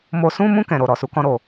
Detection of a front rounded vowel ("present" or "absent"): absent